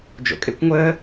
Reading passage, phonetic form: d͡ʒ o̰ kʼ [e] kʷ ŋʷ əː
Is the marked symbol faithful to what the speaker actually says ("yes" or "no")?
yes